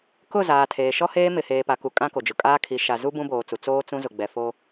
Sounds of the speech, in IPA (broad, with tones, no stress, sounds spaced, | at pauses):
k ʊ˦˨ z aː˨ tʰ eː˨ ʃ ɔ˦ h eː˦ m ɪ˨ h eː˨ p a˨ k u˨ kʼ ã˦ k o˨ d͡ʒ ʊ˨ kʼ aː˦ kʰ i˨˦ ʃ a˨ z u˦ b ũ˦ b oː˨ t͡s u˨ t͡s oː˦ t͡s ũ˦ z ʊ˨ ɡ͡b ɛ˨ f o˦